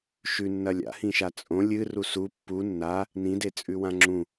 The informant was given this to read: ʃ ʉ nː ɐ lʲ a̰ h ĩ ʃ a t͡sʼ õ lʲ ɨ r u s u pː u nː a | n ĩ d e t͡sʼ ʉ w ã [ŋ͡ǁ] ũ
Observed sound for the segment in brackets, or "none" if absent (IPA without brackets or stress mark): ŋ͡ǁ